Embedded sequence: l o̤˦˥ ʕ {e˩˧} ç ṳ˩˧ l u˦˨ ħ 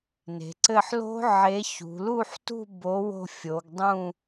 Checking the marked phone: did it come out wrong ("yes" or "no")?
yes